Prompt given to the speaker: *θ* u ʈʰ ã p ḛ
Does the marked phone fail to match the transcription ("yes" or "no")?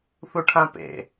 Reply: no